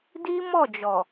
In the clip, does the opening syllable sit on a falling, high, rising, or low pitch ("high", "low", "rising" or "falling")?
high